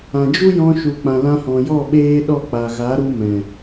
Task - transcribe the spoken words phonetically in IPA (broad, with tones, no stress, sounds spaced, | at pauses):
ã˨ d͡ʒ u˦ j ɔ̃˧ ʃ u˨ k͡p ã˨ l ã˧ h ɔ̃˨ j ɔ˦˨ ɓ eː˦ ɗ ɔ˦˨ k͡p a˨ ɣ a˨˦ ɾ u˧ m ɛ̃˨